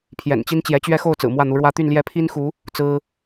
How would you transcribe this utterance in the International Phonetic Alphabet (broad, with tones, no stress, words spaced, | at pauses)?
pʰjɛ̰˨˩nt͡ɕi˥n t͡ɕjɛ˧˥t͡ɕɥɛ˥xo˥˩ʊ̯ t͡sɹ̩˨˩mwä˥˩n̪u˧˥ɻwä˥ t̪y˥˧nljɛ˥˩ pʰi˥nxu˧˥ | t͡sɹ̩˥